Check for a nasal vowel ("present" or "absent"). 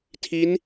absent